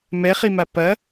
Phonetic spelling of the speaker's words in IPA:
m ɛ χ i m a p ɐ

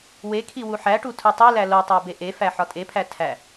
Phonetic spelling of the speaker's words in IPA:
w e kʰ i w u ħ æ ʈ u tʰ u tˤ e l æ l o tˤ æ b e ʔ e f æ ħ ɒ tʼ e pʰ æ tʰ æ

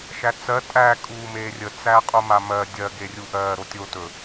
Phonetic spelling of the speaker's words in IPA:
ʃ æ t͡s ɜ tʼ æ kʼ uː m eː rʲ ə t͡s æ qʼ u m a m ɜ dʲ ɜ ɡ e rʲ u ʔ ɜː ɾ o tʲ o t ɵ

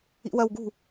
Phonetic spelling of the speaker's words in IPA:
ḭ w ɐ w ɡ ṳ

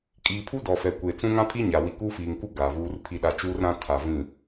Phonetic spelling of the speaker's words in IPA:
kʼ iː˨ pʰ u˦ d ɔ˨ f ɛ˨ kʷ e˨ t͡s ũ˦ ŋ ã˦ pʰ i˦ ɲ a˨ w i˨ k uː˦ f iː˨ ŋ k u˦ ɡ aː˨ v uː˦ r pʰ i˦ ɗ a˦ t͡ʃ uː˦ r ɾ ã˦ tʰ a˨ v ĩ˦˨

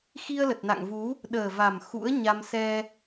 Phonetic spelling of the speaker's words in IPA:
x i˧ ə̯ l ə˨˩ t̚ n a̰˧˨ ŋ v u˨˦ | ɗ əː˨˩ v a˨˩ m x ṵ˧˥ ə̯ ɲ a˧ m s ɛ˧

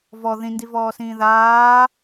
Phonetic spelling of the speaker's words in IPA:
v ɔ ð ĩ n d i v ɔː s ĩː ð aː

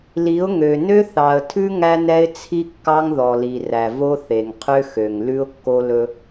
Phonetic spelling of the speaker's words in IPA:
l i˨˦ ʊ̯ ŋ ø˨ n ø˦ θ ɑ˨ ə̯ tʰ ʉ˦ ŋ æ˦ n ɛ˦ ɪ̯ t͡sʰ i˦ kː ɑ˦ ŋ ð ɔ˨ l i˨ r æ˨ v o˦ θ e˨ ŋ qʰ ø˦ x ø˨ ŋ l ʉ˦ ʊ̯ kː o˦ l ɵ˦

